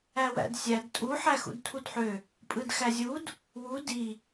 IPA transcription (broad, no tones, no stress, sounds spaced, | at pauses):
æ w æ̰ d sʲ æ d tʼ u ħ æ x ṵ d tʰ u d ħ ø | pʼ ɯ d x æ zʲ u d | w u d i